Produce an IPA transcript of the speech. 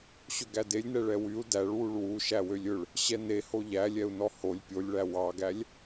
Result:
ɕ ɵ ɡ æ d e lʲ n ɛ ɭ ɛ w y u̯ d æ ɭ w u ɭ w u ʃ æ w ø lʲ ɵ ɭ | ɕ ɛ n e h o ʎ æ lʲ ɛ u̯ n ɔ h o lʲ pʲ o lʲ ɭ æ w ɑ ɡ æ lʲ

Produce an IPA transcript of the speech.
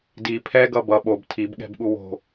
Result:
d i pʰ ɛ ɡ ʌ b ʌ ɓ o b tʰ i b ɠ ɛ̤ b ɠ u w o̤

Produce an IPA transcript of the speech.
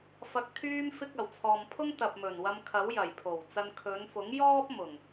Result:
f ɐ˧ k̚ t̪ʰ yː˥ m f ɪ˥ k̚ ɐ˨˩ w t͡sʰ ɔː˨ m pʰ ʊ˥ ŋ t̪ ɐ˨ p̚ m ɵ˨˩ n w ɐ˧ m kʰ ɐ˨˥ w j ɐ˨˩ j pʰ o˨˩ w t͡s ɐ˧ n kʰ ɵ˨˧ n f ʊ˨˥ ŋ j ɔː˥ p̚ m ʊ˨˩ ŋ

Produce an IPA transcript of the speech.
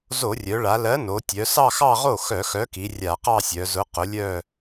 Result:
z o˧˩˧ rʲ œ˩˧ ɭ a˩˧ l ɜ˨˥ n o˩˧ tʲ œ˩˧ s ɑ˥˧ x ɑ˥˧ ʁ o˥˩ x œ˧˩˧ x œ˨˥ k i˩˧ rʲ a˧˩˧ q ɑ˥˧ sʲ œ˩˧ z ʊ˨˥ q ʊ˨˥ lʲ œ˥˧

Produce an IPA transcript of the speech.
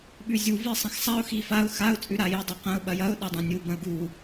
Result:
ɓ ʉ zʲ u v i sˤ ɐ̃ x sˤ a ʊ̯ x i f a ʊ̯ x a ʊ̯ t͡sʼ ʉ ɾ a j i dˤ ʉ q ɐ̃ ʊ̯ ɓ ɐ j ɐ ʊ̯ ɗ ɐ dˤ ã nʲ u b ɐ̃ ʊ̯ ɡ u

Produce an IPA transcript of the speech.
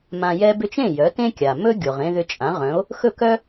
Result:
m ã˧ j ɛ˥ b ʏ˥ t͡ʃ ẽ˥˩ j œ˩˥ t ẽ˥ kʲ a˩ m ɵ˥ ɡʲ o˩ ʁ ẽ˧ ð ʏ˧ t͡ʃʼ ã˩˥ ʁ œ̃˩˥ o̯ | x ɵ˥˩ k œ˥

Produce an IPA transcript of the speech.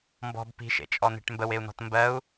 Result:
m b ɔ̤ b p i̤ ʃ ḛ t͡ʃʼ ɔ n̪ e̤ ʈ m b ə w e u̯ n̪ ɔ̤ t m b ɜ u̯

